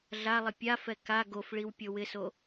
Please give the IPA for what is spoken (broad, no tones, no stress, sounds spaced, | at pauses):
ɮ a lˠ ɪ pʲ a f ɛ k a ɡ o f ɭ i w pʲ o w ɪ s o